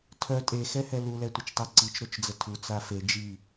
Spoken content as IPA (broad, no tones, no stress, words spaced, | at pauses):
tʰœ tʼe xɛhɛlu lɛtʷət͡ʃtˤoǀit͡ʃ ɾot͡ʃd͡zətʰu t͡safe d͡ʒi